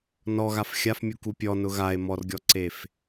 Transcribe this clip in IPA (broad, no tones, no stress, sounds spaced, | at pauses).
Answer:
n ɔ ɣ a f xʲ a f mʲ u k u pʲ ɔ n ʊ ɣ a e̯ m ɔ r ɡʲ ɔ ǀ e f